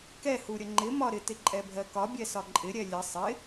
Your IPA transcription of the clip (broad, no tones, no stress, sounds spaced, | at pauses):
k ɛ h u ɾʲ ə ŋ͡ǃ ɪ m ɒ ɾ ɪ t ɪ ǃʼ ɛ bʱ ɜ k ɒ bʲ ɛ s ɒ ǃʼ ɪ ɾʲ ɛ lʲ ə sˤ ɪ